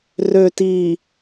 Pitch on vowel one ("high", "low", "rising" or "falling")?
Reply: low